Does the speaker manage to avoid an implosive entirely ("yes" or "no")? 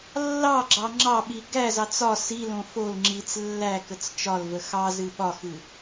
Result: no